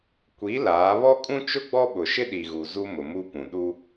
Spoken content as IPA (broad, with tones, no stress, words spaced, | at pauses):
kʷi˨˦ laː˨˦ βɔ˦kʼũ˦ t͡ʃʊ˦ ɡ͡bɔ˦ɓʊ˨ ʃɪ˦ɗi˨ɣu˨ zu˦mʊ˨mu˦pũ˨ ɗu˦